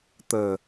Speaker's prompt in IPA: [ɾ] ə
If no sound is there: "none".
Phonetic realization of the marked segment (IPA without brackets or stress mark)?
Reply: t̪